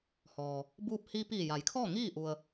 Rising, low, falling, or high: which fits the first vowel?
low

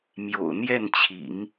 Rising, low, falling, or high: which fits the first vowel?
low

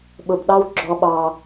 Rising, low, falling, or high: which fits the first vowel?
low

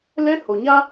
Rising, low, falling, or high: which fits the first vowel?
high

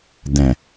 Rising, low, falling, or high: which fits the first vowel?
low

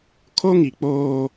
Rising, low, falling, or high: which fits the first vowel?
high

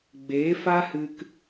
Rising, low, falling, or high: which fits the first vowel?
rising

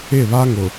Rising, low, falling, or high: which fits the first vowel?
falling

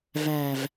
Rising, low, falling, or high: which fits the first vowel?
low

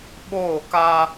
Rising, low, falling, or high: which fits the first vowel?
falling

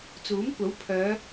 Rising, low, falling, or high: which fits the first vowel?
rising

